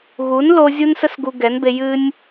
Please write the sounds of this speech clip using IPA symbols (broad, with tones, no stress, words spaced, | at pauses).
ɣu˨˦nlo˧ zʲu˦nsə˦s ɡu˧ɡɛ˨˦nbe˧ jɨ˦nʲ